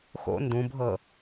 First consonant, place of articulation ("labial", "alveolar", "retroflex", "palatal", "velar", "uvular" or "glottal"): velar